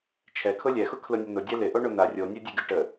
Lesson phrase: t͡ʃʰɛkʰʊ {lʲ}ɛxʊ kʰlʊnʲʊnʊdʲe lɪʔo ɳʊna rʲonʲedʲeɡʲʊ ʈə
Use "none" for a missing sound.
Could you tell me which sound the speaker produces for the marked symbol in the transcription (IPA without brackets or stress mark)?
lʲ